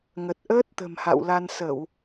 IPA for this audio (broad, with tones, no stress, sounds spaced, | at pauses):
ŋ ə˨˩ t̚ ʔ əː˦˥ t̚ t̪ ə̤˨˩ m h a̰˧˨ w l a˧ n s ə˧˩˨ w